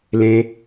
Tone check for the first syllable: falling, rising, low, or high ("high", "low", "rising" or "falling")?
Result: high